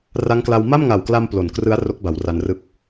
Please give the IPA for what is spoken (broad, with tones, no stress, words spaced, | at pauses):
ra˦˥ŋkla˧w ma˥˩mŋa˨˩wkla˧m plo˨˩nkrɯ˦˥a̯ ro˦˥k̚ba˩˦w ra˧nrɯ˥˩k̚